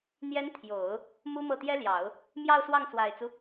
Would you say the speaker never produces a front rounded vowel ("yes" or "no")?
yes